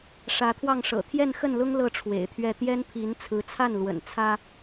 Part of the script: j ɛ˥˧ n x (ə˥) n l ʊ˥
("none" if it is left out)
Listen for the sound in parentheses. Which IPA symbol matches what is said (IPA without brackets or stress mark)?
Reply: ə˥˩